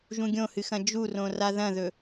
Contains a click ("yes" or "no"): no